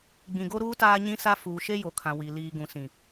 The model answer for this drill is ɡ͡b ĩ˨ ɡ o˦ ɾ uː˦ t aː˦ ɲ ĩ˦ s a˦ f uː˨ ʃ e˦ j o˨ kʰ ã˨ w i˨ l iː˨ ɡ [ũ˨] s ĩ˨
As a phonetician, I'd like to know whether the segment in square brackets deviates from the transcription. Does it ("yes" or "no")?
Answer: no